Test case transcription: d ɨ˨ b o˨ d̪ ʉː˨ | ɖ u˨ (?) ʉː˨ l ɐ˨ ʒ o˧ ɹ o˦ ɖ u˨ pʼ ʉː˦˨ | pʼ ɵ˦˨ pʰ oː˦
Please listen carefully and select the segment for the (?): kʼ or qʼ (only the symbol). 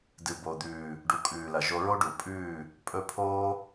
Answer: kʼ